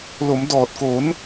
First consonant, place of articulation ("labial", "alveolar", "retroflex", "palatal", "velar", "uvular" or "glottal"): alveolar